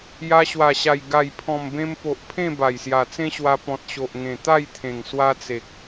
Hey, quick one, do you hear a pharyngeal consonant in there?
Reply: no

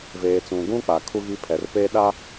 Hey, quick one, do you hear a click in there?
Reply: no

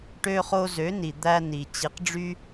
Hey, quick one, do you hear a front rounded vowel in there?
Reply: yes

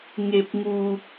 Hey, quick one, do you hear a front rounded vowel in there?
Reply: no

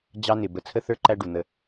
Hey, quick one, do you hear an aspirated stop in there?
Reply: yes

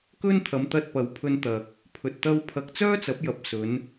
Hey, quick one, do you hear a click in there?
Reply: no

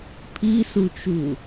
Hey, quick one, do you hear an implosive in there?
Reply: no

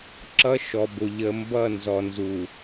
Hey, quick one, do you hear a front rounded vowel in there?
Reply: no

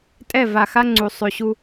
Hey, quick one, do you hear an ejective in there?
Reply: yes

